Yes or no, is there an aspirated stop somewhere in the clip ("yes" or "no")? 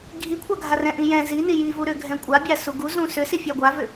yes